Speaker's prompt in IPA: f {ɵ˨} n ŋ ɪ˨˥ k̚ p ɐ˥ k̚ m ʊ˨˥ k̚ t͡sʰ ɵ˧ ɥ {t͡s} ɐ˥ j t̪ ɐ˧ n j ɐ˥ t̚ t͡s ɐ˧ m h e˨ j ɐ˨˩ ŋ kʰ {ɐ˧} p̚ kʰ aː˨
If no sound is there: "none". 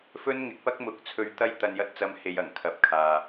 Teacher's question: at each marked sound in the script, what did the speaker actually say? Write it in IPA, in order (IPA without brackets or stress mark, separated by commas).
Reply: ɵ˥, t̪, ɐ˨˥